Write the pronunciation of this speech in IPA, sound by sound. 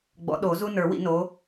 ɡ͡b ɔ̰˨˦ ɗ o˨˩˦ z u˦ n ə˞˨˩˦ w ḭ˨˩˦ n o˨˦

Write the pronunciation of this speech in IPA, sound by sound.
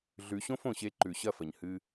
ɮ ʉ˨˦ ɕ õ˦ f õ˨ ɕ e˧ ǃ ʉ˨ ɕ ɐ˦˨ f ɐ˨ ɲ h ɨ˧

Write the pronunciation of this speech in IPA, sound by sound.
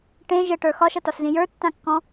ʈ ẽ ʒ ə ʈ ə˞ x ɒ ʃ ʌ t ɒ s z ĩ j ə˞ tː ã kː ɔ̃

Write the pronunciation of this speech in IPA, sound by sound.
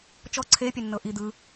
t͡ʃ ɔ ǀʰ e pʲ ɛ nː ɤ ʔ i d̪ ɯ

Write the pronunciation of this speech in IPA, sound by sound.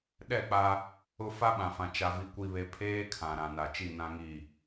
ɗ ɛ˦˨ k͡p a˦ | ʊ˦ f a˦ ɓ ã˨ f ã˨ t͡ʃ a˨ v i˨ kʷ i˨ β e˨ pʰ eː˦ kʰ ã˨ ɾ ã˨ n a˨ t͡ʃ i˦˨ n ã˦ ŋ i˦˨

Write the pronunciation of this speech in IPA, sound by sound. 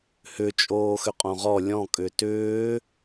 h ʏ t͡ʃʼ oː x ʏ qʼ õ ʁ ɔ lʲ ɔ̃ kʼ ʏ t ʏː

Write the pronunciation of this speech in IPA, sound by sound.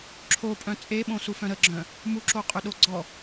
ǁʰ o pʼ œ̃ t͡sʼ e ɓ õ s u f œ̃ ɾ ə ɡ͡ǁ œ̃ | m u ǁ o qʼ ø ɗ o ɡ͡ǀ ɔ

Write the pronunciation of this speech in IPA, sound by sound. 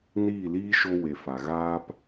n iː˦˨ l iː˦ ʃ o˦ w e˨ f a˨ ɣ aː˦ p

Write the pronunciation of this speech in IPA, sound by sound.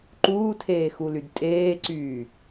ǃ uː tʰ eː x u l y d tʼ eː ǀ yː

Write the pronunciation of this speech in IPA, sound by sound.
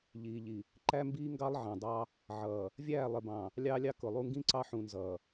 ʎ iː˨ ʎ i˨ | ǃ æ˦ m b iː˦ ŋ ɡ ɑ˦ lˠ ʕ ɑ̃˨ dˤ ɑ˦ | ʕ ʌː˨ | vʲ æː˦˨ lˠ ɪ˨ b ɑ̃˨ | lʲ ɑː˦ lʲ ɑ˦ k ʊ˨ lˠ u˦ ŋ ɡ ĩ˦ ǀ ɑ˦ ħ ũ˨ n z ʌː˨

